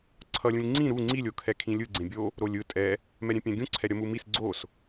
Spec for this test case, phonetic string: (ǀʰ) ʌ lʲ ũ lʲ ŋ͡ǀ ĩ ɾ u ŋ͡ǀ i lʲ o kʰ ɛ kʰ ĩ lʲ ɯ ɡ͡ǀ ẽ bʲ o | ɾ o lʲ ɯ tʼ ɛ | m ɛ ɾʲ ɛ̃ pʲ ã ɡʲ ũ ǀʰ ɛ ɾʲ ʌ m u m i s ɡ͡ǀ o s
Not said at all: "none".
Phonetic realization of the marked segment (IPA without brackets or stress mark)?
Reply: ǀʰ